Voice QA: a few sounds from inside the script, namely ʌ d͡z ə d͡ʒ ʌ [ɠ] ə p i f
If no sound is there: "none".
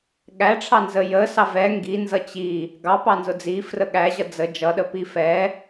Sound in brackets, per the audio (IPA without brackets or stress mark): ɗ